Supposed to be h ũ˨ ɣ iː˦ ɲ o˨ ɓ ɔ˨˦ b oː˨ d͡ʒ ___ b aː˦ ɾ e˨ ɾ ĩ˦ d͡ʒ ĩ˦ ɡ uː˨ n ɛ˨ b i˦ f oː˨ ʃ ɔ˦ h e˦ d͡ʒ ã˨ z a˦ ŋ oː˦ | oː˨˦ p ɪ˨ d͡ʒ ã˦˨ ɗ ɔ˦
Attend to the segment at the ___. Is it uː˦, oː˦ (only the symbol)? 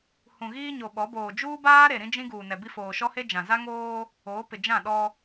uː˦